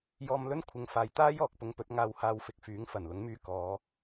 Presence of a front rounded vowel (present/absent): present